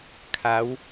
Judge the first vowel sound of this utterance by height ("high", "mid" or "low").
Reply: low